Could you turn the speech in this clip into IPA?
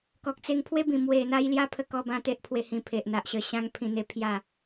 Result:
kɔ˨k̚t͡se˧ŋ pʰwe˦bĩ˨˩ mwe˨˩n̪a˧j lja˦pʰə˧kɔ˧bã˧ t̪e˦ʔpʰwe˧hĩ˧ pʰe˨ʔn̪a˨ʔɕə˧ ɕã˦ŋpʰĩ˧n̪e˦ pʰja˥˧

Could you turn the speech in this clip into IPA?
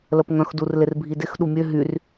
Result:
ləpŋœ̃xdur lɪrbʱidɪx ɗumʲø ɦyr

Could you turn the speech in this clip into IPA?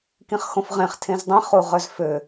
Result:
kĩχxõfʁẽχ tʰẽzdˤĩ χuʁœzfø

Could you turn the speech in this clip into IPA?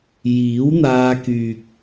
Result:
jiː˨˥wn̪aː˧kyː˨k̚

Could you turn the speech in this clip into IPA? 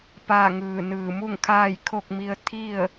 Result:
paː˥˨ŋɯː˧˩nɯː˧˩ mu˥˨ŋkʰaː˥˨jkʰo˥˨k̚ mi˧ə̯t̪ʰi˥˨ə̯

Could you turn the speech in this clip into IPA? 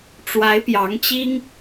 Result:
ʈ͡ʂwa˧˥ɪ̯pjɑ˧˥ŋt͡ɕi˥ŋ

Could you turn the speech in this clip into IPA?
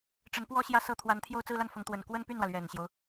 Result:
ʈ͡ʂə˧˥npwɔ˥ɕjä˥˩sɤ˥ t̪ʰwa˧˥nt̪ʰjo˥˧ʊ̯ t͡sɹ̩˥˧la˥˩nfʊ˧˥ŋt̪wə˨˩n kwə˥npy˥˩nwä˩ lɥɛ˨˩nɕjo˦ʊ̯

